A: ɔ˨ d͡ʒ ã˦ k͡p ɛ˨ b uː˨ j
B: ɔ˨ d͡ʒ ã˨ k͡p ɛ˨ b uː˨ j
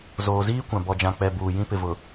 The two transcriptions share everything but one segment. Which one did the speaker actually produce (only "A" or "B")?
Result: B